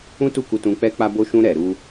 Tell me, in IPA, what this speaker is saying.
ũ˦ t u˦˨ k u˧ t ũ˧ k͡p ɛ˦ k͡p a˦ b o˦ ʃ ũ˦ ɾ ɛ˧ ɾ u˦

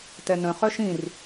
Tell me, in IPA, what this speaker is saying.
t ɛ n ə̃ χ œ ʃ ĩ r

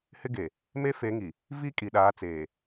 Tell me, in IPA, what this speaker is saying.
h ɪ˦ ɡ e˨ | m e˦ f e˨˦ ŋ i˨ | v i˦ kʼ i˨ ɗ aː˨˦ t͡s eː˨

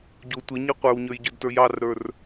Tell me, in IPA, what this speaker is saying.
ɟ o tʷ e ɲ i qʷ ə˞ w ɲ ə˞ j ɟ ə˞ d t ə˞ j ɑ r ɾ ə˞ r

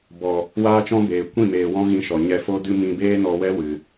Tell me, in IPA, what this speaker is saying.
b ɔ˨ | w aː˦ t͡ʃ ɔ̃˦ b eː˨ kʷ ĩ˦˨ m eː˨ w ɔ̃˦ ɣ ĩ˧ ʃ ɔ˨ ɲ ɛ˧ f o˦ d ɨ˦ m ĩ˧ b eː˦ n ɔ˧ w ɛ˦ w ɨ˧

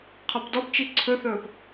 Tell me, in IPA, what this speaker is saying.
qʰ ɒ p d ɔ p t͡ʃ i ǀʰ ɵ θ ɵː p

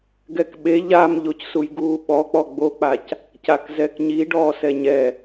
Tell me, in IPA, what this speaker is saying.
ɡ ɛ k ɓ e ʎ a m ʎ o c s u j ɡ uː ɓ ɔ k͡p ɔ ɡ͡b o k͡p a c | c a k z ɛ k ɲ i ɖ ɔː s ɛ ɲ ɛ

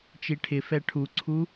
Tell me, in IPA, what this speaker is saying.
t͡ʃ i ʈʰ ɪ f ɛ ʈʰ u ǀʰ u

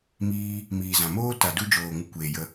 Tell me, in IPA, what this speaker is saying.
m iː˧ | m iː˨ z ã˨ m oː˦ t a˨ d u˧ d͡ʒ oː˨ ŋ u˧ kʷ eː˨ j ə˧

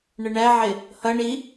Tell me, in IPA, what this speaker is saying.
ɳ ə ɳ æ ʕ ɪ | h ʌ ɳ i

